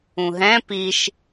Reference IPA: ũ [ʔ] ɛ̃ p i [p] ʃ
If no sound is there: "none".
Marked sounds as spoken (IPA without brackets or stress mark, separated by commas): ɦ, none